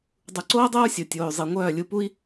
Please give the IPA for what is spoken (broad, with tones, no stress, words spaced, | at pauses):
dˤu˨ǀoː˦dˤoː˦ sʲo˨tʲoː˨y̯ zˤi˨ ŋʷœː˦˨lʲu˦˨pu˦i̯